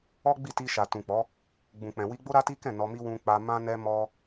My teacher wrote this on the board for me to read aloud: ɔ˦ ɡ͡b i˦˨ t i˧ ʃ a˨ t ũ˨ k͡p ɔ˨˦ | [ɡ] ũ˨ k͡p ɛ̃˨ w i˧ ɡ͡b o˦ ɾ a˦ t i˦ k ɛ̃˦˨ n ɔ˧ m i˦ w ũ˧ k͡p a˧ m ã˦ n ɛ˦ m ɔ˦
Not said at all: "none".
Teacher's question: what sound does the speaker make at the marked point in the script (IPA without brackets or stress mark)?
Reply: ɡ͡b